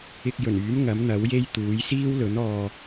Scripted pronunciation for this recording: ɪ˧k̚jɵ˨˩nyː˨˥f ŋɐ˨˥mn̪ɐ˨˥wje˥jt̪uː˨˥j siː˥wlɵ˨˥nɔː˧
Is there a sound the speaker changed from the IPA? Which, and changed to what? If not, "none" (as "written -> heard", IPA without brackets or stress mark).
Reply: f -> m